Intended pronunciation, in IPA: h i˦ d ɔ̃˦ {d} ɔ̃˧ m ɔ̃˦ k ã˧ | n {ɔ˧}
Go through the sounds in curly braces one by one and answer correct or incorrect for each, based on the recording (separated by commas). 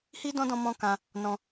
correct, incorrect